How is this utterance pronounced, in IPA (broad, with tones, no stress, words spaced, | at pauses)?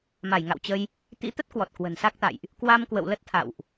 ma˧˩j ŋa̰˧˨wt͡ɕə˧j | t̪ḭ˧˥t̪ə˦˥t̚kwɔ˨˩t̚ kwə̤˨˩nsa˦˥k̚t̪a̰˧˨jʔ | kwa˧mkwə̰˧˨wlə˦˥t̚ t̪ʰa̰˧˨wʔ